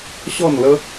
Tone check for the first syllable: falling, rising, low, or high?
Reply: falling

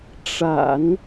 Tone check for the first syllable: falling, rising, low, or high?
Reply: low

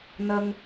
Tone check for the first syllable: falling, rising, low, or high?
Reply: high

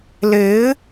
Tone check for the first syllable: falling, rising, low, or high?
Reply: rising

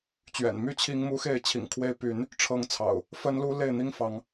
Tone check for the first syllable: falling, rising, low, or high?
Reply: low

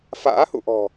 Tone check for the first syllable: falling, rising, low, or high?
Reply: rising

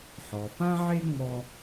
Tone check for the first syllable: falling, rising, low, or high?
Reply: low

